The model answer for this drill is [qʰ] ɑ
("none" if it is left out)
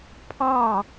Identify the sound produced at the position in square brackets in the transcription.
pʰ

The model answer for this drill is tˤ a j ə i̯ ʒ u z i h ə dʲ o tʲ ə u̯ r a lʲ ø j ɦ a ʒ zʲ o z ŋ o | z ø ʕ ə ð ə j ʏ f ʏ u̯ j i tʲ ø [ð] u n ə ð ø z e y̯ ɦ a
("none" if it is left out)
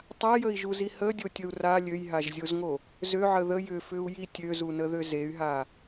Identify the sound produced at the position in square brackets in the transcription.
z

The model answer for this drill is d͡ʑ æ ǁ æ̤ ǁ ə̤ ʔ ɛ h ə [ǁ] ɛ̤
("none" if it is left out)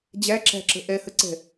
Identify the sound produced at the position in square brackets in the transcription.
ǀ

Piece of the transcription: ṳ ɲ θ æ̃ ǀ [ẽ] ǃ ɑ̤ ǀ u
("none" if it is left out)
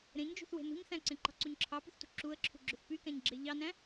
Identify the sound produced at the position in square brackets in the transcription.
ẽ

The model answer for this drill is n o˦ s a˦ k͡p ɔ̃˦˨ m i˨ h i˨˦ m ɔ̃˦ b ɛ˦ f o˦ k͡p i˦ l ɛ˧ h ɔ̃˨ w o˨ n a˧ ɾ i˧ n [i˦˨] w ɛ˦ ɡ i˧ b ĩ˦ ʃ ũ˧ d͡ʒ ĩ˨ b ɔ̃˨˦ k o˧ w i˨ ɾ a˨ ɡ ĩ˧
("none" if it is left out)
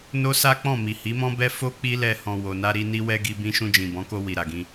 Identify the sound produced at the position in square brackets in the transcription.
i˦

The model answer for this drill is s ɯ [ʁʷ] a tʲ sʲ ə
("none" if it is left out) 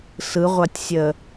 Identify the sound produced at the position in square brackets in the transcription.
ʁʷ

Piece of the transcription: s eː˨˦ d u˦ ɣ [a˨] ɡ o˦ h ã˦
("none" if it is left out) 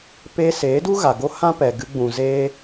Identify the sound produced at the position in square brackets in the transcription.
a˨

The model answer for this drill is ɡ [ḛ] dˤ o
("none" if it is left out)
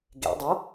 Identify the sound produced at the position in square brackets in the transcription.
ḛ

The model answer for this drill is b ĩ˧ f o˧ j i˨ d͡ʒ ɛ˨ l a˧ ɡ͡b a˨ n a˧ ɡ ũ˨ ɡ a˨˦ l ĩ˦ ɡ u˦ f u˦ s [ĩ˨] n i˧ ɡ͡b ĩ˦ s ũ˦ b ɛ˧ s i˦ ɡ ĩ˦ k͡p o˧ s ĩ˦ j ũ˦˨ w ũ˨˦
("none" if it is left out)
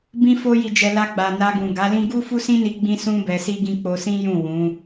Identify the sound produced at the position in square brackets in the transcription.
ĩ˦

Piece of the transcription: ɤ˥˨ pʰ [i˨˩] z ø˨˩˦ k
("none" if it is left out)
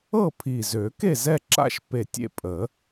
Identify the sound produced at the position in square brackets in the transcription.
i˨˩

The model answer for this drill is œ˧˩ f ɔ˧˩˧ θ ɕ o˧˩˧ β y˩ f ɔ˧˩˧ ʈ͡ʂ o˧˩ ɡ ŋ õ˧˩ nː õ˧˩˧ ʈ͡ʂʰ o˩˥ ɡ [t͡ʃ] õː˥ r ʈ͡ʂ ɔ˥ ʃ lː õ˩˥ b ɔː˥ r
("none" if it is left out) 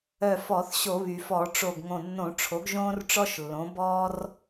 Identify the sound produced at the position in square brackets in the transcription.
ʒ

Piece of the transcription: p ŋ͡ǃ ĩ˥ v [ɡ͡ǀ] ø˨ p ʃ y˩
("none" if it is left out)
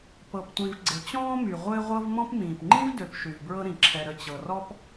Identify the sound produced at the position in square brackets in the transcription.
d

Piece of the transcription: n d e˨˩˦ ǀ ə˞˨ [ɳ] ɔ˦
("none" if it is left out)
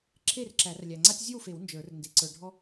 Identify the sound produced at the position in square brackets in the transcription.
ɖʱ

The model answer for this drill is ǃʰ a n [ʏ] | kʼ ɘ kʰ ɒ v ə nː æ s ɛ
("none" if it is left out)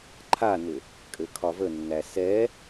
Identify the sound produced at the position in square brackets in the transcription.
ʏ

